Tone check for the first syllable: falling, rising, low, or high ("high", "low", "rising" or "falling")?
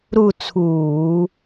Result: falling